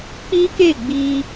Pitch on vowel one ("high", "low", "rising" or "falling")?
high